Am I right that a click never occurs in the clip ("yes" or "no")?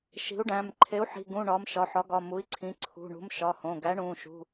no